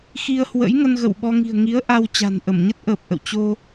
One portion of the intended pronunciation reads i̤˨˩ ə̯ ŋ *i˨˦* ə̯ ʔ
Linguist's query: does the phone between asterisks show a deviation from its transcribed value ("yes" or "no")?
no